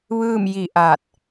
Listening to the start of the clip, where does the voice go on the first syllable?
falling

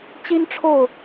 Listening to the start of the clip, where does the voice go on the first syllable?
high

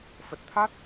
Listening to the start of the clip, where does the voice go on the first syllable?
low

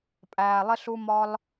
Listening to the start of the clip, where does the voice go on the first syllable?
low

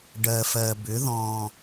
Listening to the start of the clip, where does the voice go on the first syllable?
low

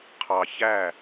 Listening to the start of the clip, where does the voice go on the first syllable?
low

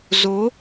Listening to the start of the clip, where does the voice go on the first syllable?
rising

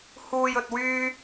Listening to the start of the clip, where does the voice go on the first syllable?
low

